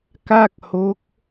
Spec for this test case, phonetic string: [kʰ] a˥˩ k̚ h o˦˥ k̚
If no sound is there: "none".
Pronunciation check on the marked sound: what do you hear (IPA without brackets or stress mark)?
k